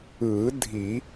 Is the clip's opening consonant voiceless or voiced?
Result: voiced